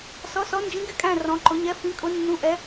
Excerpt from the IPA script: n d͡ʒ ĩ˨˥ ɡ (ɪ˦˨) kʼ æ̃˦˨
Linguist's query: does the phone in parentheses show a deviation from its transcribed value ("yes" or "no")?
no